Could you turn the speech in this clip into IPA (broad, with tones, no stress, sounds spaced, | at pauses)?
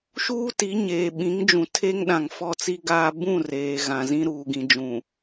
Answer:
ʃ uː˦ t i˨˦ ɲ eː˨ ɓ ĩ˨˦ ŋ d͡ʒ ũ˨ tʰ e˦ ŋ ɗ ã˨ ŋ f ɔ˦˨ t͡s i˦ ɡ aː˦ b ũ˦˨ r eː˨ ɣ ã˨ z ĩ˦ ɾ uː˨ ɡ ĩ˨ d͡ʒ ũ˨